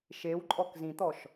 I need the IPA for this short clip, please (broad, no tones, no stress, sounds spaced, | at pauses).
ʃ e w ǃʼ ɔ k z ĩ t̪ ɔ ʃ